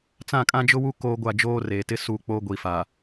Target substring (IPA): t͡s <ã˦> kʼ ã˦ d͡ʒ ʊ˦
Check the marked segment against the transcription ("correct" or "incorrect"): incorrect